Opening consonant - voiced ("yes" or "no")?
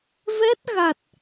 yes